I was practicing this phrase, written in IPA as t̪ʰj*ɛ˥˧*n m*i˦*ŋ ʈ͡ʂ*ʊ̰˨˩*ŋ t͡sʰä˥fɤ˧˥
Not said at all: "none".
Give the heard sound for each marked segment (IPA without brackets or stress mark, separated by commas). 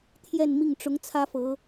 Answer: ɛ˥˧, i˥˩, ʊ˧˥